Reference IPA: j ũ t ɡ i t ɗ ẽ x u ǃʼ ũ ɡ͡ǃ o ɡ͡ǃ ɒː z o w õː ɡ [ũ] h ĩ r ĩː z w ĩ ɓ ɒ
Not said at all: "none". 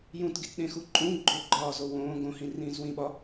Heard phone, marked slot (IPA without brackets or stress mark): õ